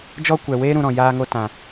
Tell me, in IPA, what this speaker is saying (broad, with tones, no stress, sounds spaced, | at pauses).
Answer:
d͡ʒ ɔ˦ kʷ ɛ˨ w eː˦ ɾ ũ˧ ɾ ɔ̃˨ j aː˧ ŋ o˧ t ã˨